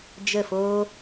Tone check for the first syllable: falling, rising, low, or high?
falling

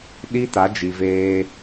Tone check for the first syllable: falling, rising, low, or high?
high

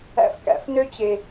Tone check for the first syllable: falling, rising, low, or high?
low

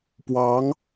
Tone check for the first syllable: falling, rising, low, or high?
rising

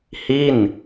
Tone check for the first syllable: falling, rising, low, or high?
falling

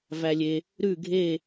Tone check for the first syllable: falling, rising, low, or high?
low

